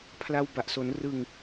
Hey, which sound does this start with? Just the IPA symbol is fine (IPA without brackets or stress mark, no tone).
pʰ